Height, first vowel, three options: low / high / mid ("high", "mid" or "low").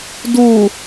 high